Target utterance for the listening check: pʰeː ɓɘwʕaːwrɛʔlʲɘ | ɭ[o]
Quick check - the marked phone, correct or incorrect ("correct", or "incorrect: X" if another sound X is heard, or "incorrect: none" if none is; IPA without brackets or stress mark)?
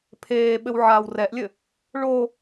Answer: correct